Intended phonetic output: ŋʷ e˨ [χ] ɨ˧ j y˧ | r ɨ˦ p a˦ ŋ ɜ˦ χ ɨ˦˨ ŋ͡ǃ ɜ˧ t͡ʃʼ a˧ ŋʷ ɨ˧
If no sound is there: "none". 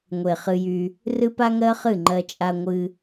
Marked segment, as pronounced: χ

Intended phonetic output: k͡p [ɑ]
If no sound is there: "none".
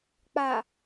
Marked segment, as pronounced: a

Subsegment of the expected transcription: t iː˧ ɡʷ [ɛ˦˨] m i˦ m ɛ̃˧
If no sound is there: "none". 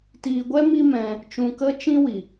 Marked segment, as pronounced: ɛ˦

